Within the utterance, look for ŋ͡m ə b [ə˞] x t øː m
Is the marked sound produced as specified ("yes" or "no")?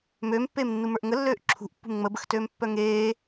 no